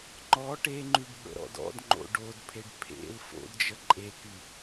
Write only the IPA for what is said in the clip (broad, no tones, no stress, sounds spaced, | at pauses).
ŋ͡ǃ ɔ ʈ e ŋ͡ǃ y ɖ ɓ ə̰ ɾ ɔ̰ d ɔ̰ d ŋ͡ǃ o̰ ɖ o d pʰ e ɖ pʰ ḛ l f o̰ d d͡ʒ ə ǃʼ e k y